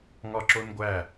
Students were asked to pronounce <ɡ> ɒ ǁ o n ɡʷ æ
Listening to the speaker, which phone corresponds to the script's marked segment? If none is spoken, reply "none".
ŋ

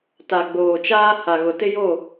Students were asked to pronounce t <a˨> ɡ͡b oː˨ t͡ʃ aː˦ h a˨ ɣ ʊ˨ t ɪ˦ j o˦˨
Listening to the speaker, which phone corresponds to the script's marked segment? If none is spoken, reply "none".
a˨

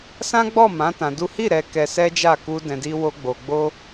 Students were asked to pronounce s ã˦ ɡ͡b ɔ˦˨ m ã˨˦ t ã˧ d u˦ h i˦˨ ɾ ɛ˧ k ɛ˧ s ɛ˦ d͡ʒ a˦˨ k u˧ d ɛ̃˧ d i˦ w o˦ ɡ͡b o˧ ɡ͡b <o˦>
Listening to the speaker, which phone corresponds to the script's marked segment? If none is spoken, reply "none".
o˦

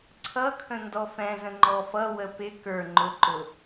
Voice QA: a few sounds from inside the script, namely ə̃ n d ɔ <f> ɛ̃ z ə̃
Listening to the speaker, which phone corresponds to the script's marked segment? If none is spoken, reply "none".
f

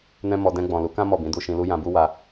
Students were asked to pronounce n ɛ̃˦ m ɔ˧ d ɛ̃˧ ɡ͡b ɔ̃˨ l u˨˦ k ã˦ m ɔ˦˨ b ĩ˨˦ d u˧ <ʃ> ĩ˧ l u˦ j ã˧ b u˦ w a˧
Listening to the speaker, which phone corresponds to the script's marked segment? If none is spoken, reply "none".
ʃ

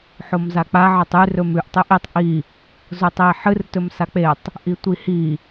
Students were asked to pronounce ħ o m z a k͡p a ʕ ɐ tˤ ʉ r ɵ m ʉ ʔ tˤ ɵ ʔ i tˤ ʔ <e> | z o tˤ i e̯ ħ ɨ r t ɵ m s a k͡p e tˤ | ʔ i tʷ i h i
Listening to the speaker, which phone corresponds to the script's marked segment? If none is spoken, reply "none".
i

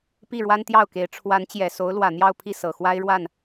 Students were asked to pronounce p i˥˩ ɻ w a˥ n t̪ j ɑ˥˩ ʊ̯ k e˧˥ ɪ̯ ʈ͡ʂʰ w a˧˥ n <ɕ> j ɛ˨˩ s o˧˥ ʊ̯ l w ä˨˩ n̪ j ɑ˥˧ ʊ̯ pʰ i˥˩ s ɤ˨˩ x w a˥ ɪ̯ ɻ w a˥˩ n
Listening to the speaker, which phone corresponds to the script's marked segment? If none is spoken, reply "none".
t͡ɕ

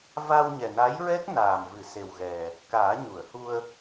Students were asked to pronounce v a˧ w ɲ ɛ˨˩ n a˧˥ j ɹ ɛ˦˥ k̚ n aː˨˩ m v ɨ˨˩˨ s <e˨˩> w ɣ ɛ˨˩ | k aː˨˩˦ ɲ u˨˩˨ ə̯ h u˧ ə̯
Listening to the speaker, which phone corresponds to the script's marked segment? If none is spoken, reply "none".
e˨˩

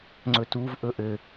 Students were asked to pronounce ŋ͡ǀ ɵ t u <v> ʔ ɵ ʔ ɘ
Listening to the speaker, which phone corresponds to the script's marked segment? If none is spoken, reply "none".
v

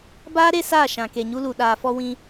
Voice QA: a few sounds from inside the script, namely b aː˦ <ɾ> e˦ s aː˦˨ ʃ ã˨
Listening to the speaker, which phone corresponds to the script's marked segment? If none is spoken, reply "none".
ɾ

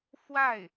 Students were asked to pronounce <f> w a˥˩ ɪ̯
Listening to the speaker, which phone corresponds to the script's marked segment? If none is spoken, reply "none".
f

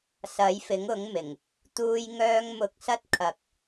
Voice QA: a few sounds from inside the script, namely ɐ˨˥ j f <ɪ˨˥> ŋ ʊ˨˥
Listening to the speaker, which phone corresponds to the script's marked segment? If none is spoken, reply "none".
ɪ˨˥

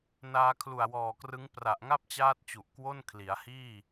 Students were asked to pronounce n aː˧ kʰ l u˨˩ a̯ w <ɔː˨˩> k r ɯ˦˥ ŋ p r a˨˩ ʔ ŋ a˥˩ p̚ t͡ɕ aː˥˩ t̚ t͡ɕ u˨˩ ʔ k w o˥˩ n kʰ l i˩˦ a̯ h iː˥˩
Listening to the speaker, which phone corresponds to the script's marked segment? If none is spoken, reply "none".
ɔː˨˩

